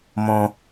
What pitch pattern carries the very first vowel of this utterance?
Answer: low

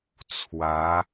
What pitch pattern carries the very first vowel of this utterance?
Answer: rising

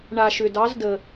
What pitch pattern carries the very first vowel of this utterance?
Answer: low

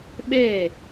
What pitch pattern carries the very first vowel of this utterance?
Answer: falling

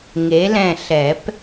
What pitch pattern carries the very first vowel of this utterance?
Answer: rising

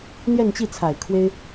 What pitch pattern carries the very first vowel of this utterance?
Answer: falling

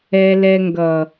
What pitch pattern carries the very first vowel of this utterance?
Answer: low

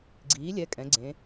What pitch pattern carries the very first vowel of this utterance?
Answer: rising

